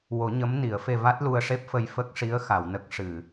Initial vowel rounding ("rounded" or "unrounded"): rounded